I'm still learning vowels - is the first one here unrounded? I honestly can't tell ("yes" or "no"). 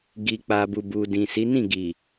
yes